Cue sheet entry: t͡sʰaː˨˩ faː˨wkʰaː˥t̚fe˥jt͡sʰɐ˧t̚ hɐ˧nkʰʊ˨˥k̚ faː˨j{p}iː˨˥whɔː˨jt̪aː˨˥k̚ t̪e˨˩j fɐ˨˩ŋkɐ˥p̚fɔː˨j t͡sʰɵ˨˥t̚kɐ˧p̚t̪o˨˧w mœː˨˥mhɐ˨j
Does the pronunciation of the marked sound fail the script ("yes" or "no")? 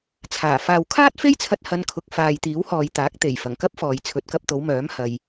yes